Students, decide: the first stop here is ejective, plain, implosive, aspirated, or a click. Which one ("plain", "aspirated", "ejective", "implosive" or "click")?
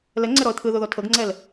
click